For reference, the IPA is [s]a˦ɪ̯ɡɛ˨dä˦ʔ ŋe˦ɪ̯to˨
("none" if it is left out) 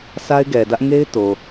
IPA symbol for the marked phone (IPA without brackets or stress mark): s